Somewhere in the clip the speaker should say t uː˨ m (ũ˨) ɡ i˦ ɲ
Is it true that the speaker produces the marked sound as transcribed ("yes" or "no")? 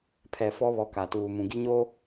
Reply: yes